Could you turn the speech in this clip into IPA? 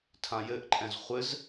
tʰ ã j ɘ ʔ ǃʼ ɛ̃ z χʷ ɘ z

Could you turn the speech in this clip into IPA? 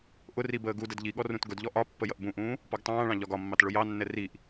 ʔ ʊ r i b əː ɡ u d ə d ʎ i ɠ ɔ r ũ t ɡ ʊ d ʎ ɔ ʔ ɒ pː ə j ʌ ʔ b ũ ʔ ũː | p ɔ ɡ tˤ ɑ̃ː ɭ ɑ̃ ʎ ɒ ɡ ɒ mː ɑ t ɭ ʊ j ɑ nː ɛ r i ʔ

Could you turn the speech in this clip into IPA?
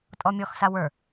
tʼ ɔ mʲ ɔ x s a w ə˞

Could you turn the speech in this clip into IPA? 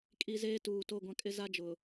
kʼ i˨ z eː˦ t uː˨ t o˦˨ ɡʷ ã˦ kʼ ɪ˦ z a˦ d͡ʒ ʊ˨

